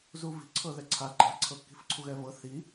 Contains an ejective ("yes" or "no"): yes